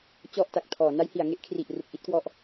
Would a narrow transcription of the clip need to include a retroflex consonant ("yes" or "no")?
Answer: no